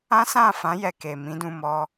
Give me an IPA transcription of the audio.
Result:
ã˦ s ã˦˨ f ã˨˦ j ɛ˧ k e˨ m ĩ˨˦ d ũ˧ m ɔ˧

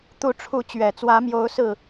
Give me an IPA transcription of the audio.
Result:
t̪ u˨˦ ʈ͡ʂʰ u˨˦ t͡ɕ ɥ ɛ˨˩ t͡s w ä˨˦ m j o˨˦ ʊ̯ s ɹ̩˨˩

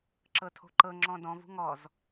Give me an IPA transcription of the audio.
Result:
ǁ ɤ tʰ o̤ ǃ ɤ ŋ͡ǁ ɔ̃ d ɔ̃ v ṳ ŋ ɔ z

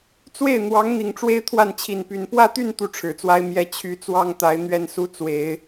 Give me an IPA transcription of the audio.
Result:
t͡s w e˥˩ ɪ̯ n̪ w ɑ˧˥ ŋ n̪ i˨˩ ŋ ʈ͡ʂ w e˥ ɪ̯ t̪ʰ w a˥˩ n t͡ɕʰ i˨˩ n p y˧˥ n p w ä˥˧ t̪ y˥˧ n t̪ u˥˩ ʈ͡ʂʰ ɻ̩˨˩ t͡s w a˥ ɪ̯ m j ɛ˥ t͡ɕʰ y˧˥ t͡s w ɑ˥ ŋ t̪ a˧˥ ɪ̯ n̪ ɥ ɛ˥˩ n s u˥ t͡s w e˨˩˦ ɪ̯

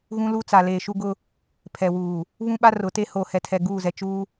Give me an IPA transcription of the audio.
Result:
ɣ ũ˦ l u˦ t͡s a˨ l eː˨ ʃ u˦ ɡ ʊ˦ | pʰ ɛ˨ w uː˨ | β ũ˦ ɓ a˦ r ʊ˨˦ t e˦ h oː˨ h ɛ˨ tʰ ɛ˨ ɡ uː˦˨ z ɛ˨ t͡ʃ uː˦

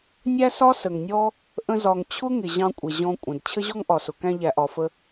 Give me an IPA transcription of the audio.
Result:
nʲ æ˦ s ɒ˦ s ə˨ ŋ nʲ ɔ˦ | ʔ ə̃˦ z ɒ˧ ŋ t͡ɕʰ ʊ˦ ŋ ɪ˨ ʑ ɑ̃˧ kʷʼ ɛ˨ ʑ ɔ̃˧ kʷʼ ə̃˨ d t͡ɕʰ ə˦ ʑ ɔ˦ ŋ ʔ ɒ˨ s ʊ˨ k æ̃˧ ʎ æ˨ ʔ ɒ˨ f ə˧

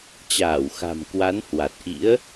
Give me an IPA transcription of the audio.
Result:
t͡ɕ aː˧˩ w x a̤˨˩ m k w a˨˦ n h w a˨˩ t̚ ʔ ḭ˧˥ ə̯

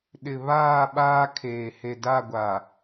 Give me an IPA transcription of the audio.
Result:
ɗ ɪ˨ β aː˦˨ ɓ aː˦ kʰ eː˨ h e˨ d a˦˨ ɡʷ a˨

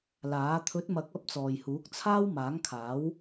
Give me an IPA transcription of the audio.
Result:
l aː˨˥ t̪ʰ ɵ˨˥ t̚ m ɐ˨˥ k̚ ɐ˨˥ p̚ t͡s ɔː˨ j h uː˨˥ k̚ t͡sʰ aː˥ w m aː˨˥ ŋ kʰ aː˨˥ w

